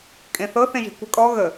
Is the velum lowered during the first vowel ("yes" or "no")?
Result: yes